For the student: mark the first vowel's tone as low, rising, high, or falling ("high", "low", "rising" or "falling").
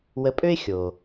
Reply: rising